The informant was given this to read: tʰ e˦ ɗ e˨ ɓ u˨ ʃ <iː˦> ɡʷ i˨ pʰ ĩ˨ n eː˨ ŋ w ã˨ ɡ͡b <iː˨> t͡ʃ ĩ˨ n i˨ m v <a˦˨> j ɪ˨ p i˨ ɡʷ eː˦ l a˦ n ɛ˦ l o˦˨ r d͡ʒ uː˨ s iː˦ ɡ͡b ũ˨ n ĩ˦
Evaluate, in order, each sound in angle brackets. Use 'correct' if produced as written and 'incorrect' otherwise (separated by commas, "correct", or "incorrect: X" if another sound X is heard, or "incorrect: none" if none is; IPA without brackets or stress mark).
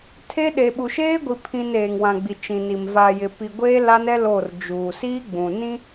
incorrect: eː˦, incorrect: i˨, incorrect: a˨